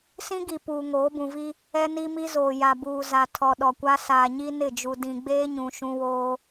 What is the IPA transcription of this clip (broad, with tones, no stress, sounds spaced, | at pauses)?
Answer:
s ĩ˦ ɡ i˨ p uː˨ ŋ oː˨˦ b ũ˨ v i˦ | ɛ˦ n i˦ m i˦ z oː˨ j a˨ b uː˨ z a˨ tʰ ɔ˨ ɗ ɔ˨ kʷ a˦ s aː˨ ɲ i˦ n ɪ˦˨ d͡ʒ u˨ d ĩ˨ ɡ͡b eː˦ ɲ ũ˨ ʃ ũ˦ w oː˦